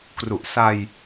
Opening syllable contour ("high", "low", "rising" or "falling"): low